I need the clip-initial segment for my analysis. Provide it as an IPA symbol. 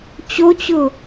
t͡ɕ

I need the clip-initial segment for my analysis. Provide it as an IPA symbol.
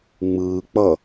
ŋ͡m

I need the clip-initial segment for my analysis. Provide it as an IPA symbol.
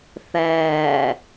θ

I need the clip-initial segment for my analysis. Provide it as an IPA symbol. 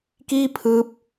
k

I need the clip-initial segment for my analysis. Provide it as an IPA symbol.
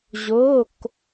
ʑ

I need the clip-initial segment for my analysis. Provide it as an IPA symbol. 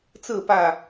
t͡s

